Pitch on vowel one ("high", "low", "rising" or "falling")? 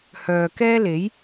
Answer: low